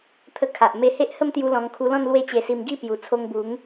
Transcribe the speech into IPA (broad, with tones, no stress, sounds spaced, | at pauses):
t̪ʰ ə˧ kʰ a˨ ʔ m e˧ h e˦ ʔ h ə˥˧ m t̪ j u˧ l ɔ̃˧ ŋ kʰ u˧ l ɔ̃˥˧ n l w e˦ t͡ɕ e˧ s i˧ m ɡ i˥˧ p j u˨˩ t͡sʰ o˧ ŋ b u˨˦ ŋ